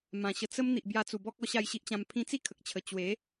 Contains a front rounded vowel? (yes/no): no